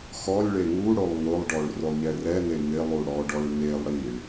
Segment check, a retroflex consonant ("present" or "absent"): present